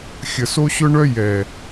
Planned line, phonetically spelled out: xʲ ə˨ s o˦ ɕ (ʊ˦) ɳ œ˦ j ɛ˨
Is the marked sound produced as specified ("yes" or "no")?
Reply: yes